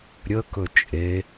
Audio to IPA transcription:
ɾʲ ə k ɵ t͡ʃʼ e

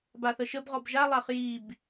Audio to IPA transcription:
b a θ ə ʃ ə b ʁ ɔ b ʒ a lˠ a χ j i b

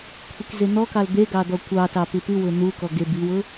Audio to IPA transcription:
kʷʰ i k z e n̪ ɔ k ɑ l d̪ e ɡ ɑ d̪ ɔ kʷ ɑ t ɑ p ɨ p ɨ w ʊ n̪ u k ɔ ɡ e b i w ʊ

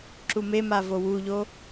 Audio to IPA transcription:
ǁ u m e m a v o w u ʎ o

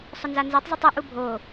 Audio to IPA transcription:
sˤ ʊ n z a n z e tˤ zˤ u tˤ œ ʔ u bʱ o

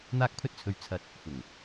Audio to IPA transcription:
n̪ aː˥ k̚ pʰ ɵ˥ t̚ t͡sʰ ɵ˧ ɥ t͡sʰ ɐ˧ t̚ | f ʊ˨˩ ŋ

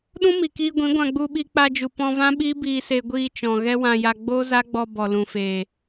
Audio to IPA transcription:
ɗ ũ˦ m i˨ k iː˧ ɡʷ ĩ˨˦ ɡʷ ã˧ ɡ͡b u˧ ɓ i˧ k͡p a˧ d͡ʒ u˨ p ɔ̃˧ v ã˦ ɓ iː˦ b iː˧ s e˧ ɡʷ iː˧ t͡ʃ ɔ̃˨ ɣ ɛ˦ w ã˧ j a˧ ɡ͡b oː˦ z a˦ ɡ͡b ɔ˧ b ɔ˨ l ũ˨ f eː˨

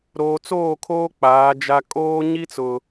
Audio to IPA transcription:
ɾ oː˨ t͡s oː˦˨ kʰ oː˦ k͡p aː˨˦ d͡ʒ a˦ kʼ oː˦ ɲ i˦ t͡s ʊ˨

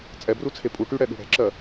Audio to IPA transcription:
t͡sʼ ɛ b r u t͡sʰ e pʼ u ʈ y ɽ ɛ ɠ ṳ ɽ ɛ̤ ǁ ɜ

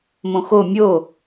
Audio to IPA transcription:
m õ x o mʲ o

